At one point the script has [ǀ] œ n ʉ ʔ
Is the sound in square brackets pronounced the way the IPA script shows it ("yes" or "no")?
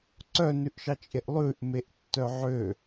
yes